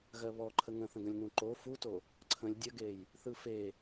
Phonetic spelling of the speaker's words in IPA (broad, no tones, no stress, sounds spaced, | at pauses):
ɣ ɜ β ɔ ǃʰ ə ŋ ə̃ θ ə̃ ɡ ə̃ lʲ n ũ ǃ o f u t o | ǀʰ ə̃ lʲ dʲ ə ɡ e j | θ ɯ f e